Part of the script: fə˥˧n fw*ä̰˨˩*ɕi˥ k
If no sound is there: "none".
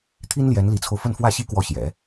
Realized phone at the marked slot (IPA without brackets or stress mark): ä˥˩